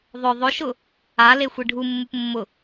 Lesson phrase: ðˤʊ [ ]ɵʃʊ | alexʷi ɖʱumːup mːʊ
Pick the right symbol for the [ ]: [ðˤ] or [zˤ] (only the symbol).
ðˤ